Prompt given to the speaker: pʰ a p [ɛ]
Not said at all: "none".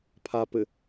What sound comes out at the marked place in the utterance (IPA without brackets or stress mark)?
ɘ